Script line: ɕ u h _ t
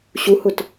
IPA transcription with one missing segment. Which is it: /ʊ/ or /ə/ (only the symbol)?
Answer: ʊ